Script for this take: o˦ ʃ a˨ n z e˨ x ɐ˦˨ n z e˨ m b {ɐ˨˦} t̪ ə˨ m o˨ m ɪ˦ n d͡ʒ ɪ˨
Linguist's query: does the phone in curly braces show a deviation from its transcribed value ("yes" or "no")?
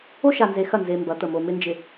no